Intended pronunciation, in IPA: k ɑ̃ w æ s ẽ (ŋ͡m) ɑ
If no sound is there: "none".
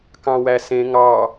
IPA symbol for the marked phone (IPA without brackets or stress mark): ŋ